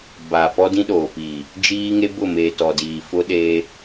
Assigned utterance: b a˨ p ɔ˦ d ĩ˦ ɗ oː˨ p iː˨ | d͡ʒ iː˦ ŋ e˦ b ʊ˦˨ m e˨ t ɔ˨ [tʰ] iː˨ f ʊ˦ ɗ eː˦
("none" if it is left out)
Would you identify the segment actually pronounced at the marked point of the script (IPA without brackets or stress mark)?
d